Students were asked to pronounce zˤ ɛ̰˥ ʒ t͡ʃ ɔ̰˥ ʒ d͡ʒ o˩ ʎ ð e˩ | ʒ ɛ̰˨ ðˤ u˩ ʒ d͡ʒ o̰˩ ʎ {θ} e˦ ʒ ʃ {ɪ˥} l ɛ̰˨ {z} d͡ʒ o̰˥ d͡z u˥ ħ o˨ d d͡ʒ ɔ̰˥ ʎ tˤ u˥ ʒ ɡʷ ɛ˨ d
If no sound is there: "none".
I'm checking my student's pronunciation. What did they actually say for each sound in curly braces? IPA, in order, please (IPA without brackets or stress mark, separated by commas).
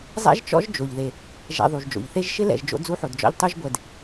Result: θ, ɪ˥, ʒ